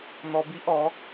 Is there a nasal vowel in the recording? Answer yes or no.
no